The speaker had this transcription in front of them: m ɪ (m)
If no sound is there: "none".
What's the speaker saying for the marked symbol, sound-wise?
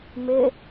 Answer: none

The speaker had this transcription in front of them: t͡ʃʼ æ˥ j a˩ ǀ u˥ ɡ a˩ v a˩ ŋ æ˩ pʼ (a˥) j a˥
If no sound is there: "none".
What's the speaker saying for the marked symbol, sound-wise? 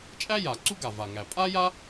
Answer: a˥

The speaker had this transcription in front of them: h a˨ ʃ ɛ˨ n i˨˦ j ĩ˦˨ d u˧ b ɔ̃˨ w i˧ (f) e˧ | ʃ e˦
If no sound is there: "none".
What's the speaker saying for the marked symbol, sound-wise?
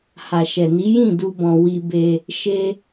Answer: b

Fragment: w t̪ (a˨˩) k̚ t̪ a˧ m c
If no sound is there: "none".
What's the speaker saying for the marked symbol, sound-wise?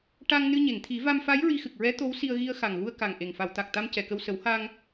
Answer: a˨˩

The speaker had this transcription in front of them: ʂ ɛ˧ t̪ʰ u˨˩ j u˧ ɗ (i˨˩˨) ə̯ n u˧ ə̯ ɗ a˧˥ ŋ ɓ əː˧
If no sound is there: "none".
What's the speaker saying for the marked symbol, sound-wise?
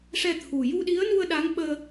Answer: i˧˥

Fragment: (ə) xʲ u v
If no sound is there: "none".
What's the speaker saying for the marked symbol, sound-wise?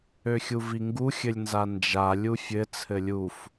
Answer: ø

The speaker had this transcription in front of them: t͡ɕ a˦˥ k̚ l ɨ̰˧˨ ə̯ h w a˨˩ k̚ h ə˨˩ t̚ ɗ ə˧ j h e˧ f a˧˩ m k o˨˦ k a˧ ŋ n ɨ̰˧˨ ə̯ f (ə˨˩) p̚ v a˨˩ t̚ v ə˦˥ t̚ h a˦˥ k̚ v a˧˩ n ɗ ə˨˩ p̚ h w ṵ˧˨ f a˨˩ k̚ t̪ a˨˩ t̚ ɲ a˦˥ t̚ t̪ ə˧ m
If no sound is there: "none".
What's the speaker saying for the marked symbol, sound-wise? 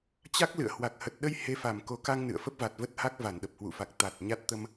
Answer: ə˦˥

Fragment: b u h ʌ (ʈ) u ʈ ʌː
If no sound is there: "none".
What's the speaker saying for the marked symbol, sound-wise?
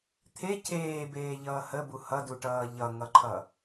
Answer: d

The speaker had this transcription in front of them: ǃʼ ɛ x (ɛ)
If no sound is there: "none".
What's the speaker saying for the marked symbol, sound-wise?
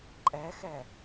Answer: ɛ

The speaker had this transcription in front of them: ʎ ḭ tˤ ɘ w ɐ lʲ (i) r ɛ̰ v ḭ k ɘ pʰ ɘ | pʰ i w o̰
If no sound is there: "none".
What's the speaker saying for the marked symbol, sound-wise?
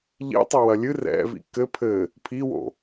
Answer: ɨ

